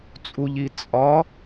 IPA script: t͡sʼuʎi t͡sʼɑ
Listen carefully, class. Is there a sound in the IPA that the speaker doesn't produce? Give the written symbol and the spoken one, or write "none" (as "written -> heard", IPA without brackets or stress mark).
ɑ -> ɒ